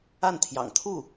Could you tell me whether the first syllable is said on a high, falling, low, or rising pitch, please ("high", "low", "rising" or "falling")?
falling